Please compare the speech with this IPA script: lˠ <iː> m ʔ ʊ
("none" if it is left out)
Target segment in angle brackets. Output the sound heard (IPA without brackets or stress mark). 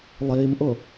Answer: iː